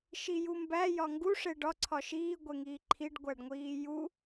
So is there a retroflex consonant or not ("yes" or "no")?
yes